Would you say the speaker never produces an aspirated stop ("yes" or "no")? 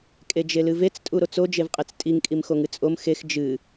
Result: yes